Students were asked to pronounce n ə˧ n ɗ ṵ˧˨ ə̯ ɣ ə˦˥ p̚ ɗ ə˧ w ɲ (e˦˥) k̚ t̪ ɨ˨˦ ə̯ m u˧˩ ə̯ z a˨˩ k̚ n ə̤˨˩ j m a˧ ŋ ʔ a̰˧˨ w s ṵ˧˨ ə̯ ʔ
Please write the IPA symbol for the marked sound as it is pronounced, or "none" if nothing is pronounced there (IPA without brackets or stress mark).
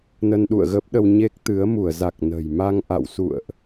e˦˥